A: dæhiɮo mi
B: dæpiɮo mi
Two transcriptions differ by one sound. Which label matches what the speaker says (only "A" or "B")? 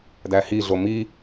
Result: A